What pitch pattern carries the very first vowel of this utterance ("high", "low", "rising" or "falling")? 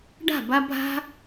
falling